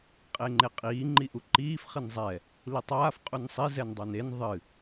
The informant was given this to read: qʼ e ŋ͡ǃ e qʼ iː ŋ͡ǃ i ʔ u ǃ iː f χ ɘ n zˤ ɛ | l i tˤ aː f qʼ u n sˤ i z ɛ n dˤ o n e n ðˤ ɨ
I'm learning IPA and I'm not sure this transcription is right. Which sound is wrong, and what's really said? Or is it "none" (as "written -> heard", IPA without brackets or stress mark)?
none